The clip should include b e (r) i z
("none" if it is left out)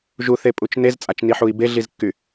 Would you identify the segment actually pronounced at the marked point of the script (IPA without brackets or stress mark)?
ɮ